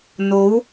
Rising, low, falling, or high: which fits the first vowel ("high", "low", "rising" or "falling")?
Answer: rising